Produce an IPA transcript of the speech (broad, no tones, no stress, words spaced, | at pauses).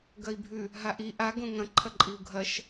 ɡɐi̯bʱʉ | ɦaʔi ʔa ɡõŋɐ̃ ǃʰɐǃʼiu̯ɡʱɐʃ